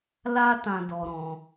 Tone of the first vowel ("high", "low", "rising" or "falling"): high